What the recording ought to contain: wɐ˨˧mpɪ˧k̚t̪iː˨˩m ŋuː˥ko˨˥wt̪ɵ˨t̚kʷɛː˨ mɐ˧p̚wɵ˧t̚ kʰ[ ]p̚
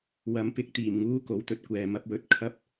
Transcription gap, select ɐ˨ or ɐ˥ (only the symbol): ɐ˥